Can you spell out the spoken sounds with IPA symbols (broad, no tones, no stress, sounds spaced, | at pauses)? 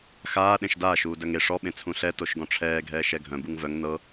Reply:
x aː ɗ ẽ ʃ d aː ʃ uː d œ ŋ e ʂ ɔ ɓ ẽ t͡sʰ ũ ɬ ɛ t o ʃ ɡ ɔ̃ ʈ͡ʂʰ ɛː ɡʱ ɛː ʃ ɛ ɡʱ œ̃ b u ŋ v œ ŋ n ɤ